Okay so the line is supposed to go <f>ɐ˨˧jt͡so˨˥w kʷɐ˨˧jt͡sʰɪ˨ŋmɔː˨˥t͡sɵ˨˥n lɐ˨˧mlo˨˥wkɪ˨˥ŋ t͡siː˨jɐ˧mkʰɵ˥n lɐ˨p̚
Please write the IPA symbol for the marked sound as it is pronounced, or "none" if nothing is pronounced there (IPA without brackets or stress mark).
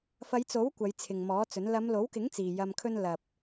f